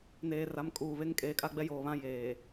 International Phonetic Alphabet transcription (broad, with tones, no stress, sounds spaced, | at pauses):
n eː˨ r a˨˦ m kʼ uː˨ β e˦ ŋ kʼ eː˨ kʼ a˦ ɡ͡b ɛ˦ j oː˨ β ã˦ j eː˨